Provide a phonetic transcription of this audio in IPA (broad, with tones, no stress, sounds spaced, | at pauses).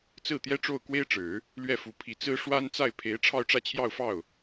t͡s ɹ̩˥˩ t̪ j ɛ˥ ʈ͡ʂ o˥˩ ʊ̯ k w e˥ ɪ̯ ʈ͡ʂ ɻ̩˨˩˦ | l ɥ ɛ˥˩ f u˧˥ pʰ i˨˩ t͡s ɹ̩˥ ʂ w a˥ n t͡s a˥˩ ɪ̯ pʰ e˧˥ ɪ̯ ʈ͡ʂʰ ɑ˥˧ ʊ̯ ʈ͡ʂ ä˥˧ t͡ɕʰ j ɑ˥˧ ʊ̯ f ɑ˥˩ ʊ̯